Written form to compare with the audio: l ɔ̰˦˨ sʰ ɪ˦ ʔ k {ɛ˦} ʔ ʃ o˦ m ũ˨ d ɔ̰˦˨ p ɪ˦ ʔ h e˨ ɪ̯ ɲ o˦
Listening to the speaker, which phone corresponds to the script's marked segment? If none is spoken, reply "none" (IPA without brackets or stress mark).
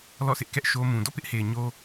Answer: ɛ˦